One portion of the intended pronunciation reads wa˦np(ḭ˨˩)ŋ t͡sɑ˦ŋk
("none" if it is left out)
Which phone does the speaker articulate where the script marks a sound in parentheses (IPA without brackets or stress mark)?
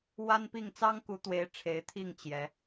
i˥˨